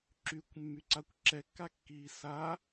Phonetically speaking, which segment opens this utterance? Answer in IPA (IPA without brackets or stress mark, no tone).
ǁ